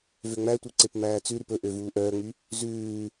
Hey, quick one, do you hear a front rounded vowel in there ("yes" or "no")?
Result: yes